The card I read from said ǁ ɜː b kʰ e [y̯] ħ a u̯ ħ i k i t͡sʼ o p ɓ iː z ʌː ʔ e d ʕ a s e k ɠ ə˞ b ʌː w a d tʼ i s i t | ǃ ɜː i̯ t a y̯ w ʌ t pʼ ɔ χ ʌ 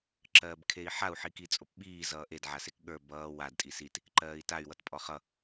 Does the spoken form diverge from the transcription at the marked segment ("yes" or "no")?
yes